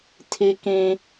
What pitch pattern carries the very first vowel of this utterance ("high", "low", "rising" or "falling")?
high